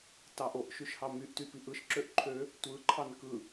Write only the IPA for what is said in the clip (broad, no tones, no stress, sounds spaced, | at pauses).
t ɑ ʔ o ʔ ʃ y ʃ h ɑ m y ʔ t y p i ʔ ɯ ʃ ǁ ø ʔ ǃʰ ø | tʷ ɯ ǃʰ ɑ n k ɯ